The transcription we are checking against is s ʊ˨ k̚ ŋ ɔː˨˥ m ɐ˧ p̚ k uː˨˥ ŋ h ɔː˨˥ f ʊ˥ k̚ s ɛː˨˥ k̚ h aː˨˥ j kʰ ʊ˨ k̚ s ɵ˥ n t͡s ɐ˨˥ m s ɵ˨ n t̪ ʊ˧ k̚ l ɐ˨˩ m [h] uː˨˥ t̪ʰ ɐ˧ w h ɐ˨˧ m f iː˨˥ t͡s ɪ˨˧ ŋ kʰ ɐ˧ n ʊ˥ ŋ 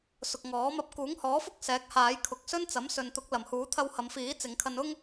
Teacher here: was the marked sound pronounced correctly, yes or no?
yes